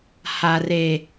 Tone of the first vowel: high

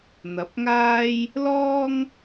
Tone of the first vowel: rising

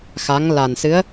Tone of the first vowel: rising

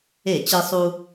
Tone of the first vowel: falling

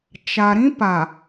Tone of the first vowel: low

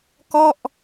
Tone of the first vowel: falling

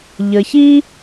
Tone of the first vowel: low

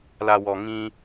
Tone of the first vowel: low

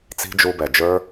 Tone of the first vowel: high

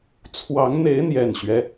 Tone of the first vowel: rising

